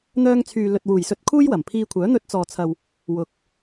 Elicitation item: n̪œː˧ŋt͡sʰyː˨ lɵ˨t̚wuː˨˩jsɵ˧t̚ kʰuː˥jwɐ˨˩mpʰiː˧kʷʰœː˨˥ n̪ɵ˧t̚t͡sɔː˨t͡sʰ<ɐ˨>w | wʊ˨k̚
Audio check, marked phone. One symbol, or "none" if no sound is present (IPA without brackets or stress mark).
ɐ˨